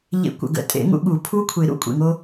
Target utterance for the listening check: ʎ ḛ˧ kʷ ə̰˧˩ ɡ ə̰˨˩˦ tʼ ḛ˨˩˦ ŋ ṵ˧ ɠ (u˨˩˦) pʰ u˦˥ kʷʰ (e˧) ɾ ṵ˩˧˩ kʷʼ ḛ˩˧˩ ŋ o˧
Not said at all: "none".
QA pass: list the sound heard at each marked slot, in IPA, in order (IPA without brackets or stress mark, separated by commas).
u˨˩˦, e˨˩˦